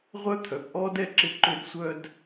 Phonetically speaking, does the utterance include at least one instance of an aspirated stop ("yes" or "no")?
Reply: yes